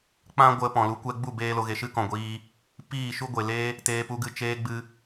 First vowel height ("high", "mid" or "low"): low